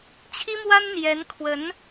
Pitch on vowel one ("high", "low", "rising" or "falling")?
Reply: high